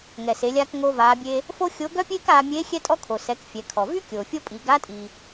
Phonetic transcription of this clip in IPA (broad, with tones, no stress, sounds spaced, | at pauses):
ŋ ɛ˩ s e˩˧ lʲ aː˧ k ŋ o˧ v aː˩˧ bʲ e˧ | f o˥ xʲ o˧˥ ɡ œ˥ pʲ eː˥ k aː˧ mʲ eː˧˥ xʲ ɛ˥ tʼ ɔ˥ kʰ o˩ s ɛ˩˧ k fʲ ɛ˩˧ kʰ ɔ˩ v y˥ kʲ oː˩ fʲ o˥ pʼ i˩˧ ɡ a˧˥ tʼ i˩